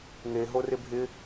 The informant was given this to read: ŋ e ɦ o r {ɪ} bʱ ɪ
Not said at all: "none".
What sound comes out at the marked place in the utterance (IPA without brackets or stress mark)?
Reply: ɪ